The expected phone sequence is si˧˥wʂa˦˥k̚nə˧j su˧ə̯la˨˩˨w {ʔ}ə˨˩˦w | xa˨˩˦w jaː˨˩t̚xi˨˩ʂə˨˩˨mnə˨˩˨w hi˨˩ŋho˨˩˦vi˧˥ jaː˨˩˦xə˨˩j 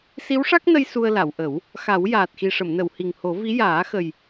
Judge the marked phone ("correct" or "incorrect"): correct